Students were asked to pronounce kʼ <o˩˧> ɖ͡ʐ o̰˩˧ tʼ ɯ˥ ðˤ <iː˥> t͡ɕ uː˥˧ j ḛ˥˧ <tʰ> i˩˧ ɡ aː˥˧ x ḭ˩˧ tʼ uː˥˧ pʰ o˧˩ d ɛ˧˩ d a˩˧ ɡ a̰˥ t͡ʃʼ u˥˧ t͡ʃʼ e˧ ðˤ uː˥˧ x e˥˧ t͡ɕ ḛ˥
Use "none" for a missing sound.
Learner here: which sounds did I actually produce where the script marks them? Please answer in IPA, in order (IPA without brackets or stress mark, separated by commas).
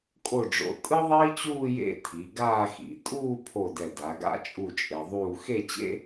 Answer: o˧˩, iː˥, tʰ